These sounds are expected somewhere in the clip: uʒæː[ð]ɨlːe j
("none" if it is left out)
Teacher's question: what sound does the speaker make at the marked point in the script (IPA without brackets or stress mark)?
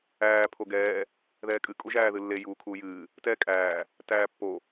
ð